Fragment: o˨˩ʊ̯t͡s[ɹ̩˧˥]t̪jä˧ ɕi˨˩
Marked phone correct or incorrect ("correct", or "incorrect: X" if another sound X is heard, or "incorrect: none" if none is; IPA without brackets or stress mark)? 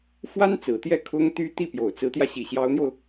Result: correct